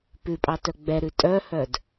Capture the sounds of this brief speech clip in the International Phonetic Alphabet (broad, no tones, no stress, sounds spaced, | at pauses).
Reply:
p ʉ pʼ ɑ t œ ɡ͡b ɛ ɾ ʉ tʼ œ h œ d